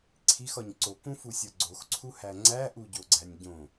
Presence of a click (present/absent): present